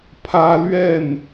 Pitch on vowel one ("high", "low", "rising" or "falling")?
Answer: high